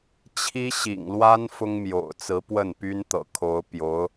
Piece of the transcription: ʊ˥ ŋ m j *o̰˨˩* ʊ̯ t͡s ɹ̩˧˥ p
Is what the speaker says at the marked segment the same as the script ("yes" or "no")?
yes